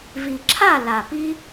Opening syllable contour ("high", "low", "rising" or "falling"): low